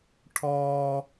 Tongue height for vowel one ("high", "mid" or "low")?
mid